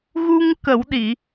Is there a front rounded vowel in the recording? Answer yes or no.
no